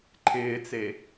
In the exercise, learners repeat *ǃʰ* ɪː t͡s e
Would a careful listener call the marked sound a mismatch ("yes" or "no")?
no